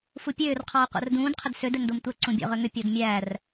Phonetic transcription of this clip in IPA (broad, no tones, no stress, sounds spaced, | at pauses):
f u pʲ øː r qʰ ɔː qʷ æ̰ r d ũː d qʰ ʏ d s ø d ɛ ŋ d o m tʷ ɛ ǀ ũ bʲ ɔ̰ ʁ ø ŋ ʏ pʲ o d mʲ æ r